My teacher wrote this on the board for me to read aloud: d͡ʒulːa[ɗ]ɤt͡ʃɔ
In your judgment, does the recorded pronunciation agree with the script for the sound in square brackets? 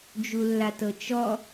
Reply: no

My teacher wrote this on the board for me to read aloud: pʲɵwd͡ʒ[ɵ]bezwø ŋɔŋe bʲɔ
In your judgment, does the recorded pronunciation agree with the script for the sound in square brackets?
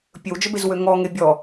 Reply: no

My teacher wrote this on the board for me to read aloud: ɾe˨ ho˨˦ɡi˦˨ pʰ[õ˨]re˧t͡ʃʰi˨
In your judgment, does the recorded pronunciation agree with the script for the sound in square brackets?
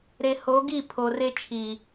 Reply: no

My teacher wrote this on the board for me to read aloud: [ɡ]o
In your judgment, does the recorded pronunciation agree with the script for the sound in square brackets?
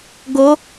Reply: yes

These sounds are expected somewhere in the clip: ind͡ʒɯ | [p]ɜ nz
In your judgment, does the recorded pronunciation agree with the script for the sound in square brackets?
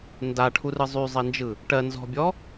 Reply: no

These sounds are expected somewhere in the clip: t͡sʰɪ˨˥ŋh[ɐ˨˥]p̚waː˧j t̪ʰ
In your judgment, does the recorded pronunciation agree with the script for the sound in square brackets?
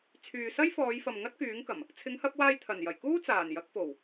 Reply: yes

